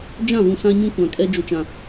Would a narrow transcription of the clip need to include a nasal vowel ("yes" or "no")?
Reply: yes